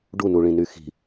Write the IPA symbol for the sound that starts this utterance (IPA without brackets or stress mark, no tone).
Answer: ɖ